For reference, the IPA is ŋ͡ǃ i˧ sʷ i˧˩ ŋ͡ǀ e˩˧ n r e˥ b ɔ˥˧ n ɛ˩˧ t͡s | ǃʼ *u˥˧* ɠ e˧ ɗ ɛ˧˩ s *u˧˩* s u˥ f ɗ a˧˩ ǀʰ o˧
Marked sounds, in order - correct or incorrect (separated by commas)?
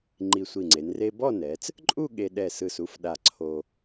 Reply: correct, incorrect